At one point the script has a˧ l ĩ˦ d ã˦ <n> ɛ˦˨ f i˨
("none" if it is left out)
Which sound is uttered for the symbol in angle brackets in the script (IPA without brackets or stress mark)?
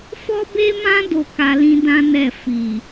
n